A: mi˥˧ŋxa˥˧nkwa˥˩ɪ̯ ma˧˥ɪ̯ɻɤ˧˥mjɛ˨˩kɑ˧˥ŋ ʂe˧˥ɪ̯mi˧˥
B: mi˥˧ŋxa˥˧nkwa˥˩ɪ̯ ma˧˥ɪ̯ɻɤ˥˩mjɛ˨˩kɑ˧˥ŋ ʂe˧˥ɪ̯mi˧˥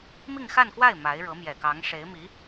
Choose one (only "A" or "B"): A